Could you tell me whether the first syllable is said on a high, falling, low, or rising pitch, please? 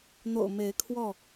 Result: low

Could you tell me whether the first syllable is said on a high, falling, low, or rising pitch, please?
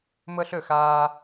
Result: high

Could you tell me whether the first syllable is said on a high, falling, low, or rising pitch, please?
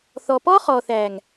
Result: low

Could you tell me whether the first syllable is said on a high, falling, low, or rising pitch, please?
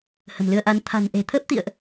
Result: low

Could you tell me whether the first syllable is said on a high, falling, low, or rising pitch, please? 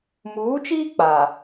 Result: rising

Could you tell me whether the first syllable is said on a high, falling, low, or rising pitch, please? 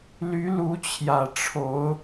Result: rising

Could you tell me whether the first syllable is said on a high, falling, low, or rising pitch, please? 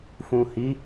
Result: low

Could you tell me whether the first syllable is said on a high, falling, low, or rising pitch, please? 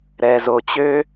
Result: low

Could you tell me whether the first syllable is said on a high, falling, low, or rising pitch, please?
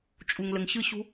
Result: low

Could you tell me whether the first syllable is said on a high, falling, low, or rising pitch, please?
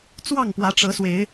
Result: falling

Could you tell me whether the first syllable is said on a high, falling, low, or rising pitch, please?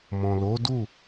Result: low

